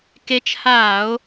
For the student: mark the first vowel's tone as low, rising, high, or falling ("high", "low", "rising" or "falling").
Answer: rising